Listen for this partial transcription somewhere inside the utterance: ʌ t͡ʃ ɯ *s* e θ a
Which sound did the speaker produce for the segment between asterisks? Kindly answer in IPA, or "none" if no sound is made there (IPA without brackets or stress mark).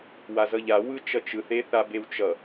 θ